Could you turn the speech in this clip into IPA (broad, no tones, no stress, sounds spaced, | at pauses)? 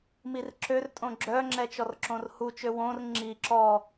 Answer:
m i r ǁ ø r tʼ õ ɡ͡ǁ œ ŋ͡ǁ ɛ t͡ʃ ɔ r ǁ õ r h u t͡ʃ ø w õ r ŋ͡ǁ i ǁ ɔ